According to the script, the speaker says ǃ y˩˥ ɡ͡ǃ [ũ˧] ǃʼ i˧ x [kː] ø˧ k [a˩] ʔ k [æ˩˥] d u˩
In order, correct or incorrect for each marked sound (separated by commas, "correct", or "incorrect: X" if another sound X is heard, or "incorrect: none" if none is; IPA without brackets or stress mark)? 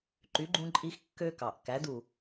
correct, correct, incorrect: ɑ˩, correct